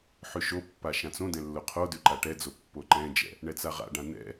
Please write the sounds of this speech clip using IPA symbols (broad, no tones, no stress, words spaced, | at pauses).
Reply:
ħʉʃopːa ʃãt͡sõdɛ̃ lːoqʰodʉ ǃaʈɛd͡zo pːoǃɛ̃d͡ʒɛ̰ | ɳɛt͡saʁa̰ɖã nɛ̰